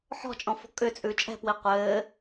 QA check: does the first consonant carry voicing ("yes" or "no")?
no